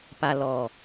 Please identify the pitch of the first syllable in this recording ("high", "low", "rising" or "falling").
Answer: low